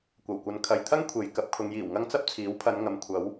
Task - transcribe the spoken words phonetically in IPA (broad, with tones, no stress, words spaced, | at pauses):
kʷɐ˨˩wkʷɐ˨n kʰɐ˨jt̪ʰɐ˥ŋ kʷʰe˨˧j kɐ˨˥p̚kʰʊ˨˧ŋjiː˨˩wŋɐ˥ŋ t͡sɐ˥p̚t͡sʰiː˨˥wpʰɐ˨˧n ŋɐ˨mkʷʰɐ˨˥w